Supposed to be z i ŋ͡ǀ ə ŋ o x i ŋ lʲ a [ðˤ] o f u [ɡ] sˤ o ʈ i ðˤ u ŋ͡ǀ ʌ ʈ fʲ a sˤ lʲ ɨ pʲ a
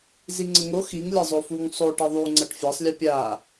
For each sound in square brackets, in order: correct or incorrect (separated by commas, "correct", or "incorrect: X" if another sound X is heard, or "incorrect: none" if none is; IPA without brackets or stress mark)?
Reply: incorrect: zˤ, incorrect: ŋ